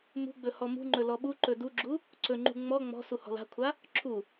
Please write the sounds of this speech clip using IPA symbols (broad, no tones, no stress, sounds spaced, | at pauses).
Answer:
m ṳ ɡ͡b ɵ h ɔ m ṳ ŋ͡ǃ ɵ l ɔ ɓ u ǃ ɵ d u ɡ͡ǁ u | ǀ ɵ ŋ͡ǃ ṳ ŋ͡m ɔ ŋ͡m ɔ̤ s u h ɔ̤ l a̤ kʷʰ a | ǁʰ u